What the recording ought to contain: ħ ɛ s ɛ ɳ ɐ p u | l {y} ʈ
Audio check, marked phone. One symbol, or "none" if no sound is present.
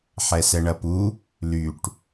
y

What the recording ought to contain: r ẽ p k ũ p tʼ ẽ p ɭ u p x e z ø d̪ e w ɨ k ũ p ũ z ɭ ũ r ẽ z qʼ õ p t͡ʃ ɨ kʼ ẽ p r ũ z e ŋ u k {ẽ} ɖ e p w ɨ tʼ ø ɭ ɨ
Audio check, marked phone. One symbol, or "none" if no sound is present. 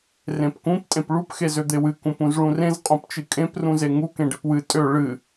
ẽ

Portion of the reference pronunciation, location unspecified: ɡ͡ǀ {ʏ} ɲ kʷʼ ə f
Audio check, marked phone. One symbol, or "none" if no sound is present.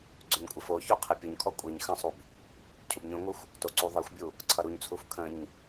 ʏ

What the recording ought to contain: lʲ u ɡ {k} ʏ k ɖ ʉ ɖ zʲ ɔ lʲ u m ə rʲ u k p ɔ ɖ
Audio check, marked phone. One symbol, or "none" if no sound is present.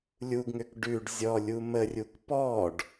ŋ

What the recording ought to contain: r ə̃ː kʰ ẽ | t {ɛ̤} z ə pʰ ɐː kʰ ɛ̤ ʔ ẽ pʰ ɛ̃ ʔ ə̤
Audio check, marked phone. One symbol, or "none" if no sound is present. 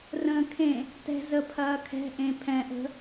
ɛ̤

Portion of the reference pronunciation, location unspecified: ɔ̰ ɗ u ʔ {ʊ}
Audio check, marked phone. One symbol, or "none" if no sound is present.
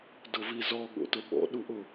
ʊ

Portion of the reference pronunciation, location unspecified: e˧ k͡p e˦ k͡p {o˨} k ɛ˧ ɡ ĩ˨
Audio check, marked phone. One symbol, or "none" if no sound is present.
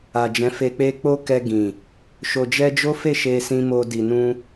o˦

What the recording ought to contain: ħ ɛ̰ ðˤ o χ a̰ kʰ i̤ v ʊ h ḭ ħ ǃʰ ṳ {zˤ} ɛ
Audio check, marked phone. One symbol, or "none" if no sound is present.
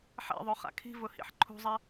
zˤ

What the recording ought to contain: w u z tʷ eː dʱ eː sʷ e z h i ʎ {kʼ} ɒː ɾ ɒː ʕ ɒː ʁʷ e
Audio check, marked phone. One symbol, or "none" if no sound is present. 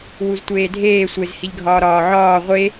ɡʱ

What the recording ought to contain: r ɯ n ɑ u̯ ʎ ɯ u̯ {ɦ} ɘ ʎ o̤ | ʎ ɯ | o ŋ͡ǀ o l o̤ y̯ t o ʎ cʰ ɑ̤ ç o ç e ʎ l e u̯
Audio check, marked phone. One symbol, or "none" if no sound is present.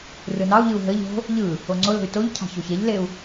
ɦ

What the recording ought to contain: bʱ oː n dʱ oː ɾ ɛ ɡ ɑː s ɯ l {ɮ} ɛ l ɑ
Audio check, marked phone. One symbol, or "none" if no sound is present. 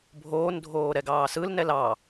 n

